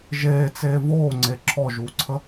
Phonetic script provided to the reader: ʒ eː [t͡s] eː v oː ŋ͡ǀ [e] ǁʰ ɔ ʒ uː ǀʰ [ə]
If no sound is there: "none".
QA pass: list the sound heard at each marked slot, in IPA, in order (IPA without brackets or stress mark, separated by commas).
t͡s, e, ə